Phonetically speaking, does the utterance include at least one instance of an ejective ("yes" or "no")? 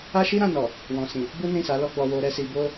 no